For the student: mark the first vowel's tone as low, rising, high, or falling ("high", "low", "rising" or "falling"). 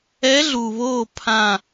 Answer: rising